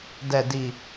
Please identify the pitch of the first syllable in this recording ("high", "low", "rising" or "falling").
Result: low